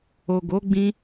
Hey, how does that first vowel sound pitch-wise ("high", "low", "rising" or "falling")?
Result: low